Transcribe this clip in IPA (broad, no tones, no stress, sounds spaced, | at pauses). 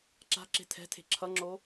ǁ a̤ ǁ e̤ tʰ ɛ̤ tʰ e̤ ǁʰ ʌ ŋ͡ǁ o